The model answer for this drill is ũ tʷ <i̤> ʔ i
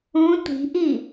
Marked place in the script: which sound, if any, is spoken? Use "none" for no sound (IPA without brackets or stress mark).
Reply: i̤